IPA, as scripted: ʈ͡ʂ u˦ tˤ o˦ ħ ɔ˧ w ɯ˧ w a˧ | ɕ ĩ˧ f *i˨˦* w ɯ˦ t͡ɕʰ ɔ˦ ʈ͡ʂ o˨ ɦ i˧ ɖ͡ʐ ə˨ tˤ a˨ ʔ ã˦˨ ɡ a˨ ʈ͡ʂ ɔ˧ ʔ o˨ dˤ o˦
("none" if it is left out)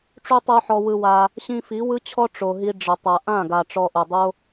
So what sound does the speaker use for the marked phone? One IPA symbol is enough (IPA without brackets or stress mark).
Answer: i˨˦